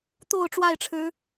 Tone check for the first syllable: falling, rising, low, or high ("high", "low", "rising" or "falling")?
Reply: low